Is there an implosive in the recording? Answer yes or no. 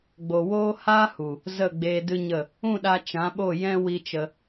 yes